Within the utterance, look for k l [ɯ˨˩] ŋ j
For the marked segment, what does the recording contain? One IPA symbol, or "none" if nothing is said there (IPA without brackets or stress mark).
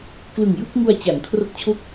ɯ˨˩